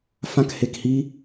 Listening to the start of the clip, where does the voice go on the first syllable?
high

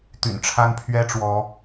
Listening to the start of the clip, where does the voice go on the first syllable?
low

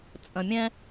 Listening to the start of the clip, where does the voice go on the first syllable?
low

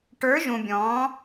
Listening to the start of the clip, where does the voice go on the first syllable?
rising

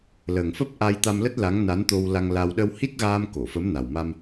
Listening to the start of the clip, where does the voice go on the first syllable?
low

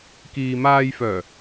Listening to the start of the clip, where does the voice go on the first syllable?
low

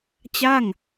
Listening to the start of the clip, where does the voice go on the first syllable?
falling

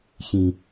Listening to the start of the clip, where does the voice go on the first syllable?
low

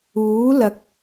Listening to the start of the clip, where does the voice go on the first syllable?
rising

